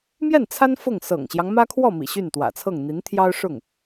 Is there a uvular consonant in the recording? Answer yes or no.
no